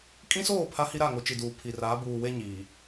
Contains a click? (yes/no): no